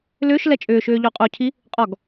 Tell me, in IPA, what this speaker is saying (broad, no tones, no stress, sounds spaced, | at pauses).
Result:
l ʏː ʃ l ɛ t͡ʃʼ ʏː ʃ ʏː ʎ o qʼ o cʰ i | qʼ ɔ ɡ